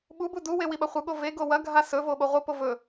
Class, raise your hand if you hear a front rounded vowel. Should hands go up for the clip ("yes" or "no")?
no